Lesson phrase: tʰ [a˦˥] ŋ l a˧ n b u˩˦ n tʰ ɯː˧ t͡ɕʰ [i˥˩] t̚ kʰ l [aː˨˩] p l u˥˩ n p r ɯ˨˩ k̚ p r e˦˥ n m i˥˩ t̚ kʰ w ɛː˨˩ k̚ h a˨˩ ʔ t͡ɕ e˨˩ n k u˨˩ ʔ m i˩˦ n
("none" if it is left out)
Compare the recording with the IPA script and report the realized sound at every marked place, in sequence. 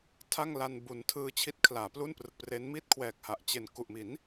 a˥˩, i˦˥, aː˩˦

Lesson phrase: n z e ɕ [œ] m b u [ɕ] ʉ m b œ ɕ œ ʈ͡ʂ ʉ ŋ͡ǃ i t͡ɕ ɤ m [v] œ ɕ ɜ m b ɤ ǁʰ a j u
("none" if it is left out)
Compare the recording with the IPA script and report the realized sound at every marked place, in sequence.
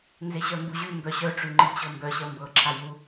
œ, ʑ, b

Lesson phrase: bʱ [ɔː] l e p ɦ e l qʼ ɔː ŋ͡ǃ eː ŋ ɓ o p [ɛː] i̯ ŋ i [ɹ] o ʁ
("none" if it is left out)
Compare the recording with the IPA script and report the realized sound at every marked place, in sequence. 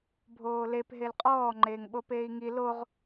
oː, eː, l

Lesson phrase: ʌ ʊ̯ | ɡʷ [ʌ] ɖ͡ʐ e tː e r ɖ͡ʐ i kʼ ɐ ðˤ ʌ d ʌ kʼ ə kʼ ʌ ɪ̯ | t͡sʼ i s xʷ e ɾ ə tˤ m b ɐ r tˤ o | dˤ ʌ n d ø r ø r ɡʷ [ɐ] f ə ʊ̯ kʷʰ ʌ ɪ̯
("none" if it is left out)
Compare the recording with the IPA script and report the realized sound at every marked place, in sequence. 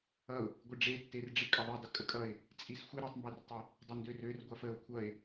ə, a

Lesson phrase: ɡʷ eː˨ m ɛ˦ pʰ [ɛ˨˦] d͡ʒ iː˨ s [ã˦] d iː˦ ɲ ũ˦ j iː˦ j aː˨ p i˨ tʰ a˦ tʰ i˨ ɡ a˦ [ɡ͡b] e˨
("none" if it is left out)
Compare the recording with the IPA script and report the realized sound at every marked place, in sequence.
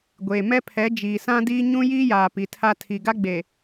ɛ˨˦, ã˦, ɡ͡b

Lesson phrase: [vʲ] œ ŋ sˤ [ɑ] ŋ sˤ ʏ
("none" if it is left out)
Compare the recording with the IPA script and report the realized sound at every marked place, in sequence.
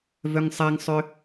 v, a

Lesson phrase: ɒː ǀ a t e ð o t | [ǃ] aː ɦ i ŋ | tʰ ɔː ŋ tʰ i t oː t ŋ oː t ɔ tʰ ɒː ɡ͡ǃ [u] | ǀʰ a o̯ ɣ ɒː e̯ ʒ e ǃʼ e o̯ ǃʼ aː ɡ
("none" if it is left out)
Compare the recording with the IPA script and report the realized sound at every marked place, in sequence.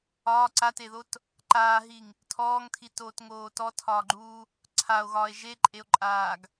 ǃ, uː

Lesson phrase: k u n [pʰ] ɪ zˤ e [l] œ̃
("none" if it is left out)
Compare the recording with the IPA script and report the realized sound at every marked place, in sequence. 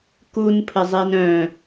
pʰ, n

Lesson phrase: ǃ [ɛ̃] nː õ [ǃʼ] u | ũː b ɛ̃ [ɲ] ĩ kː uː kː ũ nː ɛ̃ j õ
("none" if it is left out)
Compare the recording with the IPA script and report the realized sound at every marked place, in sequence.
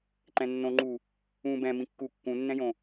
ɛ̃, ŋ͡ǃ, m

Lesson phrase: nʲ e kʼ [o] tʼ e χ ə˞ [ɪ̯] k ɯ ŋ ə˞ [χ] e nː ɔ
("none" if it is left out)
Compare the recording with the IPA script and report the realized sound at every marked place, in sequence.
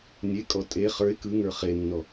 ɔ, ɪ̯, χ

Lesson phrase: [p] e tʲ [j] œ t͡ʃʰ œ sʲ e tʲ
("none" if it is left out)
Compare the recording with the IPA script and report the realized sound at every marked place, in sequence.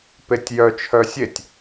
p, j

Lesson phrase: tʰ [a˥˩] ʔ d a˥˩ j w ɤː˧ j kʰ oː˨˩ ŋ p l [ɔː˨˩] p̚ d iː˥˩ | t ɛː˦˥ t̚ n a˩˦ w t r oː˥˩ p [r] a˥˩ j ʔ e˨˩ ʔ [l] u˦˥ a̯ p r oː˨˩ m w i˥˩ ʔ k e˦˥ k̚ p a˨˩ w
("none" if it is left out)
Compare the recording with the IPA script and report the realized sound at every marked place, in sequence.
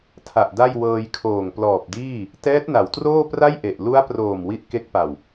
a˨˩, ɔː˨˩, r, l

